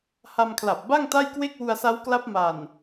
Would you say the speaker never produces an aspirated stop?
no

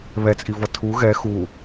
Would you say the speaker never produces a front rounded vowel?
yes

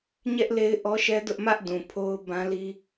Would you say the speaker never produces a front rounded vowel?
yes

